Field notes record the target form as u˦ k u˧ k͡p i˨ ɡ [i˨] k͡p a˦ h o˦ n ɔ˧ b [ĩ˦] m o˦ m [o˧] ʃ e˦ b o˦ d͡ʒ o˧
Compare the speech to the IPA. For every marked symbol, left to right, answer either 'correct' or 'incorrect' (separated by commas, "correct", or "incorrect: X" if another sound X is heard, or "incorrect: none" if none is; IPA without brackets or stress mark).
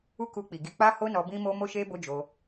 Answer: incorrect: i˧, correct, incorrect: o˦